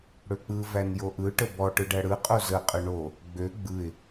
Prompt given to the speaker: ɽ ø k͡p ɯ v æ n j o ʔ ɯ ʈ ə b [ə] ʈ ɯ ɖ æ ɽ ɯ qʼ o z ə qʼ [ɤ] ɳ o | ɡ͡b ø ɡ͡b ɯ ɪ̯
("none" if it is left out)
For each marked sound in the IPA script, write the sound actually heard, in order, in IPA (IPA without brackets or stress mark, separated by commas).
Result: ɔ, ɯ